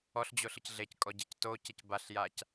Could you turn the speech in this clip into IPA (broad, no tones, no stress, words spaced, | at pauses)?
ɔɬd͡ʑoɬɯc ɮeckʼɔɟec tocec baɬjac